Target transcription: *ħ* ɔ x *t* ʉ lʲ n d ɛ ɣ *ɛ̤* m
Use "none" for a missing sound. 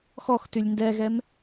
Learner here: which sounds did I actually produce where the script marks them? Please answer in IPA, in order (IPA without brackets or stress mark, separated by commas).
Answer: x, t, ɛ